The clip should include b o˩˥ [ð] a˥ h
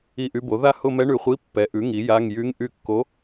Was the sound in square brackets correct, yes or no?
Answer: yes